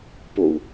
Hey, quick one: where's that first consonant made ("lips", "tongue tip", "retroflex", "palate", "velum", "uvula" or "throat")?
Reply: lips